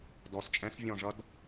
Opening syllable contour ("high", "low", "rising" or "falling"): rising